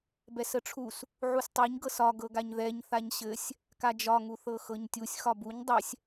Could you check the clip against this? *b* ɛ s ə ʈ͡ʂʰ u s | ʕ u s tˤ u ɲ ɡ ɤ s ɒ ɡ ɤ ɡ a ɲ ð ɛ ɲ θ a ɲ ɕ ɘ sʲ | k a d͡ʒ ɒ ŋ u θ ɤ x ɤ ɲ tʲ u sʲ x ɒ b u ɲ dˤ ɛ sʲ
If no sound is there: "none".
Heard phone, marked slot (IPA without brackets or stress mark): b